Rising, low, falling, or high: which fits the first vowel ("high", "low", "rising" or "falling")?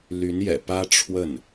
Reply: rising